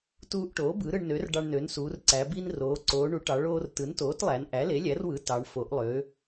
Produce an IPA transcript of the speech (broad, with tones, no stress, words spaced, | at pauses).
tuː˧ʔʈoː˩˥ bɯ˩˥ɾɯ˧ɳnø˩˥r ɖɑ˧ɳnø˩˥nsuː˩˧rǀæ˩˧ bi˧n roː˩˧ǀoː˩˧ ɳu˩˥ʈɑ˩˧ ɭoː˧r tɯ˩˥ntoː˩˥tlˠæ˩˧n ʔæ˩˥le˩˥lʲæ˩˥rwɯ˩˥ tɑ˩˧ɳ fo˩˧ʔlˠø˩˧